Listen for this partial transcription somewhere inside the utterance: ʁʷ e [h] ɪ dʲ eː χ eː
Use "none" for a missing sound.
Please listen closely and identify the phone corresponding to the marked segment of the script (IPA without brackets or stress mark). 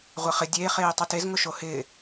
χ